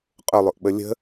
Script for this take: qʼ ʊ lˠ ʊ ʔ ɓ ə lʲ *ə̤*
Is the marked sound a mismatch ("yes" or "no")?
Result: no